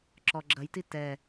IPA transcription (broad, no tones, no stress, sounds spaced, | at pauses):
ǁ ɔ ɡ͡ǁ ɐ j t i t ɛ